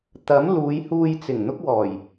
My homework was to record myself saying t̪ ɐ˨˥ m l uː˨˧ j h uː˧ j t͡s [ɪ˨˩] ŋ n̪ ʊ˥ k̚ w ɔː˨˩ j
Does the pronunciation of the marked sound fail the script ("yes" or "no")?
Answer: no